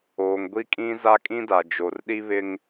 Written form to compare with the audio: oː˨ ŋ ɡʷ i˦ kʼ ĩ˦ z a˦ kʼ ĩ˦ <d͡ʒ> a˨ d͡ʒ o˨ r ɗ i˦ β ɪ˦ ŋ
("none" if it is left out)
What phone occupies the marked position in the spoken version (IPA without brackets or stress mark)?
d